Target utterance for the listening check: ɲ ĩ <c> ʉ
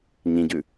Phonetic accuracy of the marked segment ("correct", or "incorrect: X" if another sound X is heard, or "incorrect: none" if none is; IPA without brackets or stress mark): incorrect: ɟ